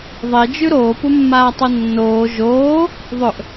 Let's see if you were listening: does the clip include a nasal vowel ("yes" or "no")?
no